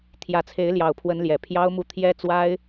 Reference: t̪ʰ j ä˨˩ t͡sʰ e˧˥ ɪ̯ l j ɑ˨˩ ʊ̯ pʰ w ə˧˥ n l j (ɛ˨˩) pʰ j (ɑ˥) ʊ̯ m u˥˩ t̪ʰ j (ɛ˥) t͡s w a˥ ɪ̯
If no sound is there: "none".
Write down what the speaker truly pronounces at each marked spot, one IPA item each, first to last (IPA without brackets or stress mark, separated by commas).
ɛ˨˩, ɑ˥, ɛ˥